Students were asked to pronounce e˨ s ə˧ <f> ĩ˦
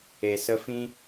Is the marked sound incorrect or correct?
correct